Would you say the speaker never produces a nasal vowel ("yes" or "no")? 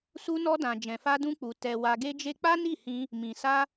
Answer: no